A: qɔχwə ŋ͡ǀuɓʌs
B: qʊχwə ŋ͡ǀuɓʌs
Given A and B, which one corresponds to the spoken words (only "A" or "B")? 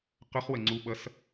B